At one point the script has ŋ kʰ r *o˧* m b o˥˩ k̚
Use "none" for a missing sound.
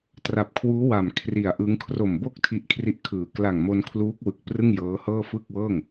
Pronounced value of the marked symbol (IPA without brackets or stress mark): o˨˩